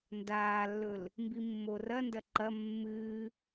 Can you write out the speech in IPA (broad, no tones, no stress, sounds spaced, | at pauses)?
n d aː lː ɵ l | m b i mː o r ɐ n d ɐ ǃ ɐ mː ɨː